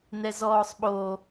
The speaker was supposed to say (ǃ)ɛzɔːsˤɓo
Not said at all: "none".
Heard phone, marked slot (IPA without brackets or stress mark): n